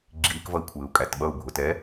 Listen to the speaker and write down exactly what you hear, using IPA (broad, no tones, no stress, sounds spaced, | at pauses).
ɡ͡ǁ i k v ʌ i̯ kʷʰ ɪː u̯ kʼ æ t ɓ ʌ u̯ bʱ ʊ t ɛ